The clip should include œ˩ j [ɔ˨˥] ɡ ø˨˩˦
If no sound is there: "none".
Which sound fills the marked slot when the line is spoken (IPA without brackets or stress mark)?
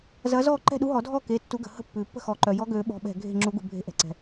ɔ˨˥